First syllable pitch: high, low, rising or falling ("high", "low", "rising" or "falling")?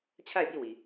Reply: falling